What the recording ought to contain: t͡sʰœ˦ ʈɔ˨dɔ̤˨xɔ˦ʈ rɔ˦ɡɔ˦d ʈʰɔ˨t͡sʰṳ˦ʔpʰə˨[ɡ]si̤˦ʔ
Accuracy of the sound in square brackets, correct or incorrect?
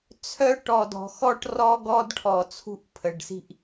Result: incorrect